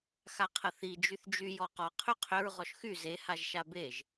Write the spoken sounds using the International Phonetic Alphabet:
x a qʰ ə θ i d͡ʒ y θ d͡ʒ y j ɔ q ɔ qʰ ʏ qʰ ʏ ɹ ʁ ɔ ʃ x y z e h a ʒ ʃ a b e ʒ

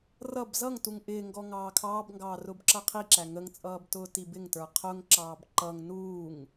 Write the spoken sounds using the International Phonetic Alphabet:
r ʌ b z ʌ ŋ t u ŋ ʔ ɪː ŋ ɡ ɔ ŋ ɑː kʰ ɑː b ŋ ɡ ɑː r ʊː b ǁ ʌ qʰ i ǁ æ ŋ ə ŋ t͡sʼ ʌː b t ʊː t i b ɪ ŋ t ə˞ qʰ ʊ ŋ ǁ ɑː b ǃ ʌ ŋ n uː ŋ

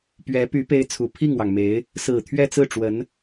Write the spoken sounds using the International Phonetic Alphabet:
p ɥ ɛ˧˥ p y˧˥ p e˥ ɪ̯ t͡sʰ u˨˩ pʰ i˥˩ ŋ w ɑ˩ ŋ m e˧˥ ɪ̯ | s ɹ̩˨˩ t̪ʰ ɥ ɛ˥˧ t͡s ɹ̩˥˩ ʈ͡ʂ w ə˧˥ n

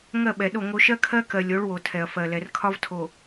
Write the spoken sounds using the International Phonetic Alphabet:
ŋ ɜ˦˨ ɓ ɛ˨ ɗ o˦˨ ŋ o˦ ʃ ɜ˦ kʰ ɜ˦ k ɜ˨ lʲ o˨˦ ɭ w o˨ tʰ ɛ˨ ɐ̯ f ɜ˨ l ɛ˨ r kʰ ɒ˦ v tʰ o˨

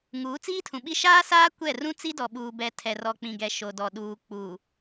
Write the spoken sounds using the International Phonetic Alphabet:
ŋ uː˨˦ t͡s iː˦ tʰ ũ˨ ɓ i˦ ʃ aː˦ s aː˦ kʷ ɛ˦˨ r ũ˦ t͡s i˦ d ɔ˨ ɓ uː˨ b ɛ˨ tʰ ɛ˨ r ɔ˨ k͡p ĩ˨ ɡ ɛ˨ ʃ o˨ d ɔ˨ ɗ uː˨ k͡p uː˨

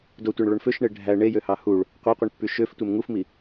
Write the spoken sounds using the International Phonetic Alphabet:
d o tʷ e ɳ ɭ o ɳ f ø ʃ ɳ e ɖʱ æ ɳ e j ø h ɑ h u ɭ | qʷ ɑ qʷ i ɳ pː y ʃ ø f tʷ e m ŋ u f m i

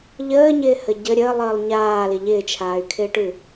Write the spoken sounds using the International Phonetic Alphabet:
ʎ əː ɲ ɪː h ə ɟ ə ɾʲ əː lˠ əː lˠ ɲ aː l ɪ ʎ ɪː t͡ʃʰ aː y̯ kʰ ɪː ʈ ʉ

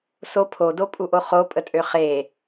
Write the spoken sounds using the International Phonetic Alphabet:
s o pʰ o d o pʼ u ʔ o χ o pʼ ə tʼ ø χ e

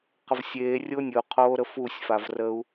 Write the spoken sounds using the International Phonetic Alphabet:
q ə v sʲ eː rʲ o nʲ ə u̯ qʰ oː ɾ ə f u sʲ f a v r ə u̯

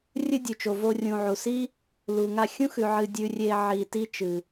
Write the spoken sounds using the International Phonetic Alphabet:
rʲ ɨ˦ dʲ ʉ˨ t͡ʃ o˨ v o˧ rʲ ũ˨ ʕ u˨ s i˦ | l u˨ ŋ a˧ xʲ ũ˦ x ʉ˨ ʕ ɨ˧ dʲ ʉ˧ rʲ e˧ ʕ i˨ t i˦ t͡ʃ ɨ˨

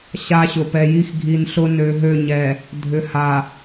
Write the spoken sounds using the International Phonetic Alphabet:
ɕ a˦ ɕ ʊ˨ p ɛ˨ j i˦ x ɡʱ i˨ n ɬ ʊ˦ n ø˨ ɦ ø˦˨ ɲ ɛ˨ | dʱ ʏ˨ h a˨

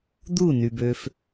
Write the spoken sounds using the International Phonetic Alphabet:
d̪ u˦˨ n y˨ b ø˧ f

